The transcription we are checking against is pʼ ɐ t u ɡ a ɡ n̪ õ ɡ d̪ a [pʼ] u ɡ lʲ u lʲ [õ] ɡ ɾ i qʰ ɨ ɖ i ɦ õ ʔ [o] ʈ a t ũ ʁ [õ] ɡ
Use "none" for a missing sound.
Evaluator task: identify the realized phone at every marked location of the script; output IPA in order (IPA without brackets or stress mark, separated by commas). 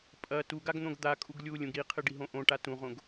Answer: kʼ, ũ, õ, õ